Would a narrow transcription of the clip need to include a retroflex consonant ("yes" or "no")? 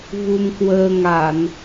no